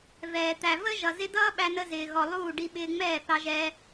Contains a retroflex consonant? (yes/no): yes